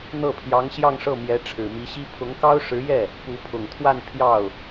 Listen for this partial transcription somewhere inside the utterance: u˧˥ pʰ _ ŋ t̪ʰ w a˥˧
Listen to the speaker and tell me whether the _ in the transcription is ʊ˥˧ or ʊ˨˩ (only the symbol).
ʊ˨˩